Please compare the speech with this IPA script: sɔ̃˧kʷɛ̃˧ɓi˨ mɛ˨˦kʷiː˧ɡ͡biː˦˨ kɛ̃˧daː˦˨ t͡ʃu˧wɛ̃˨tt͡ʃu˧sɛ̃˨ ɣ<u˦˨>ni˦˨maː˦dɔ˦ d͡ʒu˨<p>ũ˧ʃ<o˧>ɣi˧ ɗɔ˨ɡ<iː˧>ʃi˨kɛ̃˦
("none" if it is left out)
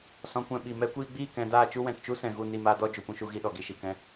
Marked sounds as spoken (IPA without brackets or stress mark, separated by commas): u˦˨, p, u˧, i˧